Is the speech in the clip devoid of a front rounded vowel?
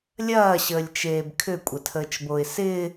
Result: no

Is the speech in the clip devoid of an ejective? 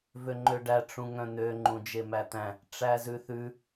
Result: yes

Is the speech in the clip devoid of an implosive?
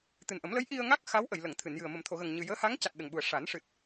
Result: no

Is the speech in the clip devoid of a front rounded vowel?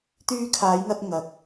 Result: no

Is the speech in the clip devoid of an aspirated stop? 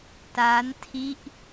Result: no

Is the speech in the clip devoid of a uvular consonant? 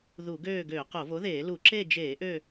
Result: no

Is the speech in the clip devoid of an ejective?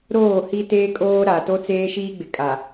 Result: no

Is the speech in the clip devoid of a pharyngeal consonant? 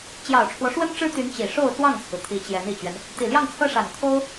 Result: yes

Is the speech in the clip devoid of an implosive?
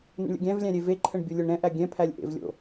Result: yes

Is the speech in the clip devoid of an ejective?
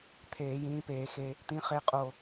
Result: no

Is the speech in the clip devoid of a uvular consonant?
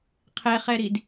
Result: no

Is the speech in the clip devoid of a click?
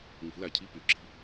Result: no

